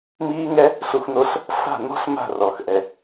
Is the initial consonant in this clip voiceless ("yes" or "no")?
no